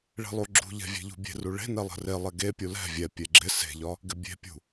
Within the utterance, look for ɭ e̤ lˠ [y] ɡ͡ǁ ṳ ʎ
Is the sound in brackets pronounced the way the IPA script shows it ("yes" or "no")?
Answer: no